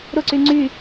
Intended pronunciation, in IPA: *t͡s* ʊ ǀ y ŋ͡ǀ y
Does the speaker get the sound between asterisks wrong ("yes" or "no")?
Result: yes